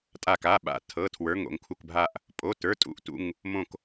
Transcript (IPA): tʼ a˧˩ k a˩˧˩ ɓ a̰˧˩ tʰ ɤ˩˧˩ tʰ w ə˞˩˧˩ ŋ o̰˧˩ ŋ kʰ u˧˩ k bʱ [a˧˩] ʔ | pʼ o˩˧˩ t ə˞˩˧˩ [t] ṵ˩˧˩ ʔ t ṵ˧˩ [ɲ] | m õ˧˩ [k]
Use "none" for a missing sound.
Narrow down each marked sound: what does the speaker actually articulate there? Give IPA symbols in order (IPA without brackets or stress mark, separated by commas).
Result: a˧˩, tʼ, ŋ, k